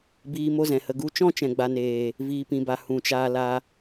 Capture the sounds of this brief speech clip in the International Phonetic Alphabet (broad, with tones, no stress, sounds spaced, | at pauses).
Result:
b iː˧ m o˦ z ɛ̃˨ h ə˧ ɡ u˦ t͡ʃ ɔ̃˦ t͡ʃ ɛ̃˨ ɡ͡b a˨ n eː˨ | v iː˨ p ĩ˨ b a˨ h ũ˨ t͡ʃ aː˧ l a˧